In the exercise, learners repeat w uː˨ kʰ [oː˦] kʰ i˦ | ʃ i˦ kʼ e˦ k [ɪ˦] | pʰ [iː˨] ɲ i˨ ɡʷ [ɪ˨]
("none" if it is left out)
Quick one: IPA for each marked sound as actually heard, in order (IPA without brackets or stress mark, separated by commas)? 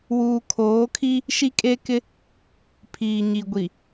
oː˨˦, ɪ˦, iː˨, i˨